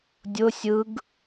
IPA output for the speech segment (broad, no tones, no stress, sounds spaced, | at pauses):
dʲ ʊ sʲ ɯ ɡ